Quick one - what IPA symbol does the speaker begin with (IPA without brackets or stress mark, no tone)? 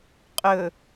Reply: qʼ